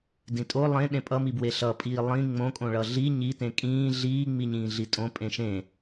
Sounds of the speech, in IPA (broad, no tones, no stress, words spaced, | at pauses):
dĩtʼo lˠẽ ɗẽpʼʌmibwe ɬʌpʼiː lˠĩ ŋ͡mõkʼõɭʌ ɮi ɲi tẽkʼĩː ɮiːŋ͡miɲĩː ɮitʼõ pʼẽʃẽ